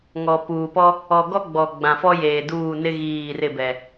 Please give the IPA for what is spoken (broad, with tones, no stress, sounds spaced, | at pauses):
ŋ ɔ˨ p uː˨ p ɔ˦ | ɔ˨ ɡ ɔ˦ ɡ͡b ɔ˨ ɡ͡b ã˨ f ɔ˦ j eː˨ d uː˦˨ n ɪ˦ ɣ iː˦˨ r ɪ˦˨ b ɛ˨